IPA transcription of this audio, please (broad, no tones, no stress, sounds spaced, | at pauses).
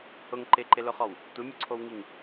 h ʊ ŋ ǃ ɪ ǃ ɪ l ʊ χ ɔ w | tʷ ɪ mʲ ʊ ǀʰ o w ŋ i ŋ